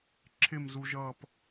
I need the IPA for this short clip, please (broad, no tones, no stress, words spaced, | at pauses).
ǁʰɪmzuʒʌːp